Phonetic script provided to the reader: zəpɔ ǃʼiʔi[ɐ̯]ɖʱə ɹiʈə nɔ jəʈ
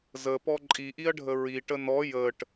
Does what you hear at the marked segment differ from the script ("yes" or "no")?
no